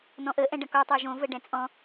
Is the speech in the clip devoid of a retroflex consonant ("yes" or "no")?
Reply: no